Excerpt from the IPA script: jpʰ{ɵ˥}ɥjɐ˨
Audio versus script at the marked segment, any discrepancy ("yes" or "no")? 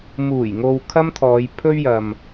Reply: no